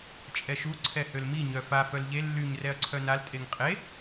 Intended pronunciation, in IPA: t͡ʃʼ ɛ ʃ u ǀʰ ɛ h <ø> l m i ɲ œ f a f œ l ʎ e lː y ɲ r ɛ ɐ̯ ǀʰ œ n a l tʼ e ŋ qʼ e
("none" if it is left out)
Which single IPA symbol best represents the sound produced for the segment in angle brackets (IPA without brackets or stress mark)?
ø